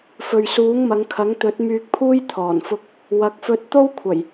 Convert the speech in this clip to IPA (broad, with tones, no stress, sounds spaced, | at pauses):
f ɵ˨ ɥ s uː˨˥ ŋ m ɐ˨˧ ŋ kʰ ɐ˨˥ ŋ t̪ ɵ˨˥ t̚ m yː˧ k̚ pʰ uː˥ j t̪ʰ ɔː˨˩ n f ʊ˧ k̚ | w ɐ˨˥ k̚ f ɵ˧ t̚ t̪ o˥ w kʷʰ ɐ˨˩ j